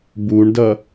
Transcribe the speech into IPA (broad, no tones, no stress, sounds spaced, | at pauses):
b u ɳ d ʌ